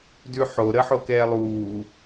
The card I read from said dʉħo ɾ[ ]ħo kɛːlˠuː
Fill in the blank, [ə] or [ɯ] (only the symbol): ə